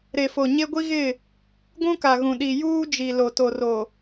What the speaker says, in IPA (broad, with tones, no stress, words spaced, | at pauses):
ɾe˨fo˨ ɲe˦ɡʷi˦ɣɪ˦˨ | ɡʷũ˦ka˨ɣũ˨ɗi˨ juː˦d͡ʒi˨ lo˨ to˨ro˨